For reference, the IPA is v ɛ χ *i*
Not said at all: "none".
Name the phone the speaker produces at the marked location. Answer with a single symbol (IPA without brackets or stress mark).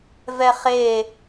e